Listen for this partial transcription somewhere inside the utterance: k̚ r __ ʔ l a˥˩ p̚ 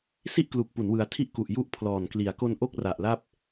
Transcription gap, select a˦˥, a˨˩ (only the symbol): a˨˩